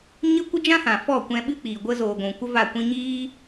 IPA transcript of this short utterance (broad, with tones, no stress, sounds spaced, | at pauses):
ɲ ə˦ kʷ ə˦ d͡ʒ ã˦ h ã˨ f ɔ˦˨ kʷ ɛ̃˧ ɓ ɨ˦ k͡p iː˨ ɡʷ ə˧ z oː˨ ɡʷ ũ˨ kʷ ə˦ v a˦˨ kʷ ĩ˦ ɲ iː˦